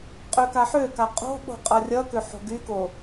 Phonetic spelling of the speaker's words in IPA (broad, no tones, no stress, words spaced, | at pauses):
qʼøkaħøka qʼo̤ ɓo̤qʼʌrʲʌkø ħo̤ɡyko